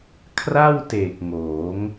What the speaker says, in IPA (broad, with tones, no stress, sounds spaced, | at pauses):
kʰ r a˥˩ w t e˨˩ k̚ ŋ oː˩˦ ŋ